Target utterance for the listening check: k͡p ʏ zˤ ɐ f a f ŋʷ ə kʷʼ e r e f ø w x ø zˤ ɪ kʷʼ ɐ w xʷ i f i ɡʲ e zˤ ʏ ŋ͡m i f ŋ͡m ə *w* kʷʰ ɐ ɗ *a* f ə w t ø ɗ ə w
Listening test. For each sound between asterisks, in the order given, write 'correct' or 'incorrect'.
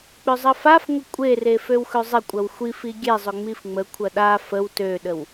incorrect, correct

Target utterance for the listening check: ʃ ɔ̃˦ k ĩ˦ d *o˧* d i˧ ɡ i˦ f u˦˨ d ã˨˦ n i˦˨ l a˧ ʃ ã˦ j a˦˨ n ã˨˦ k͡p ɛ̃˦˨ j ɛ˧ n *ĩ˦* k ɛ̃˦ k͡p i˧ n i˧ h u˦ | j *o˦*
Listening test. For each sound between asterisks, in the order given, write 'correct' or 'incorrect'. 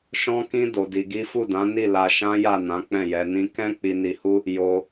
correct, correct, incorrect

